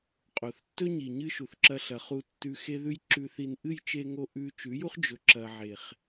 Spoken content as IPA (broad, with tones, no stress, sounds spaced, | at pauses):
qʼ o˨ θ tː ɵ˦ ɲ i˨ ɲ ɨ˦ ʃ u˨ θ ǁ ɐ˧ ɬ ɐ˨ χ u˧ tː ʉ˧ x e˦ ð ʉ˦ j ǁ ʉ˧ θ i˧ n ʔ ɨ˦˨ j t͡ʃ e˧ ŋ o˧ ʔ ʉ˦ t͡ʃ ʉ˨˦ j u˦ χ d͡ʒ ɵ˧ ǁ ɐ˧ ʕ e˨ χ